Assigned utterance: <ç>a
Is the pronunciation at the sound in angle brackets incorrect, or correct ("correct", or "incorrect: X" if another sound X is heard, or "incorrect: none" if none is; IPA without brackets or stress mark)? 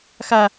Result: incorrect: x